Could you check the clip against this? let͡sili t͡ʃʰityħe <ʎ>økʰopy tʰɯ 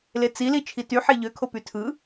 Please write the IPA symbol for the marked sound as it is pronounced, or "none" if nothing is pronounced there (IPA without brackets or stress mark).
ʎ